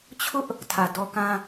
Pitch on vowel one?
high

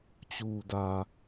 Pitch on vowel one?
low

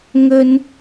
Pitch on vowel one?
low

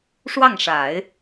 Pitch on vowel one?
falling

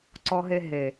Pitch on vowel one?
high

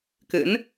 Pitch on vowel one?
rising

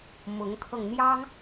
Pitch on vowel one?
rising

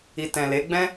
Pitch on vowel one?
low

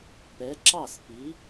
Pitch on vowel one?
rising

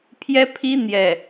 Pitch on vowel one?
high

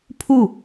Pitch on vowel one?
falling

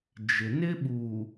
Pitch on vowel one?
low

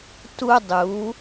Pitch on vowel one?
high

